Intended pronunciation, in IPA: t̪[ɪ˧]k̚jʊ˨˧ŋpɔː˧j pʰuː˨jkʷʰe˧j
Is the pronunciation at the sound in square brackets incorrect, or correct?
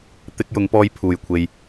correct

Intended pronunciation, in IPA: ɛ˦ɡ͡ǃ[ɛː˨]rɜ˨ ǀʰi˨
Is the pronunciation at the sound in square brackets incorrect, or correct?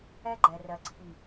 incorrect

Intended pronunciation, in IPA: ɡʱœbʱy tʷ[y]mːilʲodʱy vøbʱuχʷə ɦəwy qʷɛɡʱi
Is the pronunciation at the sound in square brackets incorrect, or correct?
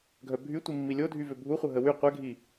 incorrect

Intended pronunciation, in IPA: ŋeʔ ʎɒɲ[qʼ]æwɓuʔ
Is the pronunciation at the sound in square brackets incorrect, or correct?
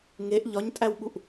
incorrect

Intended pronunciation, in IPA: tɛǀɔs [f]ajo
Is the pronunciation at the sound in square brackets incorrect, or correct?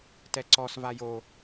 incorrect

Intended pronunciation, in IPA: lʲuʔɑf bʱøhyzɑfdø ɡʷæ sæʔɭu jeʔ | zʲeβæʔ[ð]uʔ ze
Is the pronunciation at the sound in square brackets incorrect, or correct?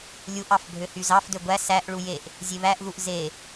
correct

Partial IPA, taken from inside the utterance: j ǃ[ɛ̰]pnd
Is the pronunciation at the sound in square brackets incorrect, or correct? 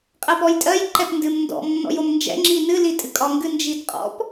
incorrect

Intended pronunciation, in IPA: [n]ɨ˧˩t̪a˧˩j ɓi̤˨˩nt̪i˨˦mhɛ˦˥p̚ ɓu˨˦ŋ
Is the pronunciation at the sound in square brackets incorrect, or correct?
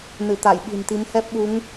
correct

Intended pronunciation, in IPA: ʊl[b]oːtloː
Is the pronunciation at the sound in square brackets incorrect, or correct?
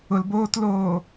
correct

